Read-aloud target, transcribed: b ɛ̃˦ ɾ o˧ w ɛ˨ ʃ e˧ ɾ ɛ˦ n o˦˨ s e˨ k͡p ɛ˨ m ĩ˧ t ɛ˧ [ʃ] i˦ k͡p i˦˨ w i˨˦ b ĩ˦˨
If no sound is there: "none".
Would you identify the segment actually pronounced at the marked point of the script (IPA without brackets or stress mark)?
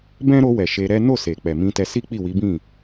s